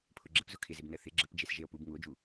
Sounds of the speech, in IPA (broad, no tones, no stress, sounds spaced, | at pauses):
pʰ ʊ ɡ͡ǁ ə p z ʊ kʰ ɪ z ɪ b n ə θ ɪ ɡ͡ǁ ə p d͡ʒ e s ʒ e o̯ p u b ŋ u o̯ d͡ʒ u